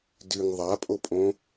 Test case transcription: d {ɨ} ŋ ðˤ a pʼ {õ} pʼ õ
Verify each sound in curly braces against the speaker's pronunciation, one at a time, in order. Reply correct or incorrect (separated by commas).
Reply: correct, incorrect